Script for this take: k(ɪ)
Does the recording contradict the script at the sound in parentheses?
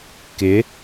no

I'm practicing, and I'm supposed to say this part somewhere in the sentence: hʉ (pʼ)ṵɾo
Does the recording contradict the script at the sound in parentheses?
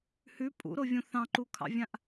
no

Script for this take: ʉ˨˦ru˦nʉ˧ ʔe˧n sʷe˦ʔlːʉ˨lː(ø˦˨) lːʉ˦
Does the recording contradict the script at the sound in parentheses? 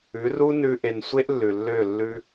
no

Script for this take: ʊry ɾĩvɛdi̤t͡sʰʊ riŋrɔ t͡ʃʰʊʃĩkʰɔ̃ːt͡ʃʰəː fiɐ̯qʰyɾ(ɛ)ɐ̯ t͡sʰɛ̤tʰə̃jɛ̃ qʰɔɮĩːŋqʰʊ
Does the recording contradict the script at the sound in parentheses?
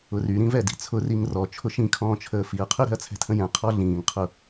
yes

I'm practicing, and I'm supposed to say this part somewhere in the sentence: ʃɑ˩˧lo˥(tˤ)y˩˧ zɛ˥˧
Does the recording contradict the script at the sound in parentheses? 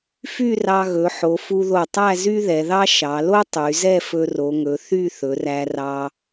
no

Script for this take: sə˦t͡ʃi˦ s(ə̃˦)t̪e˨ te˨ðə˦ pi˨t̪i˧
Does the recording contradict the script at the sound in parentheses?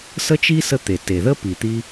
yes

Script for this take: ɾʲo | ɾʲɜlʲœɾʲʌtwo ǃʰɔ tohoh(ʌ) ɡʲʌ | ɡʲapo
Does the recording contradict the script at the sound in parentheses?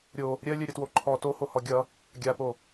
yes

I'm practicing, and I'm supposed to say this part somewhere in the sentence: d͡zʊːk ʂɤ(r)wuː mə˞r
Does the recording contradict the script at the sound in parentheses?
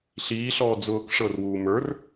no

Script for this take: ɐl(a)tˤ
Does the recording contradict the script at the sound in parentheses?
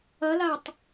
no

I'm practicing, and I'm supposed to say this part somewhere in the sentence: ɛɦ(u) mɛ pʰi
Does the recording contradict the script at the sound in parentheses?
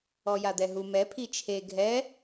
no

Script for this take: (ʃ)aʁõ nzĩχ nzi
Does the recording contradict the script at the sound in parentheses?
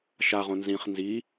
no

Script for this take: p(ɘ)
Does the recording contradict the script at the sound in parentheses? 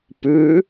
yes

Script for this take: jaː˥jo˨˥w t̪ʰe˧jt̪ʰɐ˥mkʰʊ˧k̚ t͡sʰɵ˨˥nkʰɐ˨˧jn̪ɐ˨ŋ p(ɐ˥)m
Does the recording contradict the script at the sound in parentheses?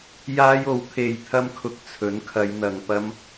no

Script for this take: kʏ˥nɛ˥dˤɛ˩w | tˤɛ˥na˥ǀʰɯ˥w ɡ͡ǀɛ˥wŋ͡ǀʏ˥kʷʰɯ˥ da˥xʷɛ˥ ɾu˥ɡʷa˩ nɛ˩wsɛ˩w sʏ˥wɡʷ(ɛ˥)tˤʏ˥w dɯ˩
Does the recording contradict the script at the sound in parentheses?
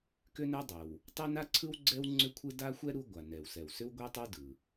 no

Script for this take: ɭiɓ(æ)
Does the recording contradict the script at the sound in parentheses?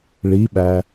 no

